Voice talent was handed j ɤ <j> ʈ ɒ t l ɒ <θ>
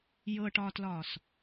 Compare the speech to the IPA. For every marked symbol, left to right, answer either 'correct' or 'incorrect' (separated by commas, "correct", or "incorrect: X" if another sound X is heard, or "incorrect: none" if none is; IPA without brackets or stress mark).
incorrect: none, incorrect: s